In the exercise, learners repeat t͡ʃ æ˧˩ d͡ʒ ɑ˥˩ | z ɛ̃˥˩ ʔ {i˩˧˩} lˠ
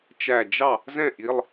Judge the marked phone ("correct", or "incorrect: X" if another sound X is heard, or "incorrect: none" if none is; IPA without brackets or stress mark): correct